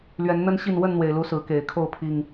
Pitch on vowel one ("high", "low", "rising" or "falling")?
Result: rising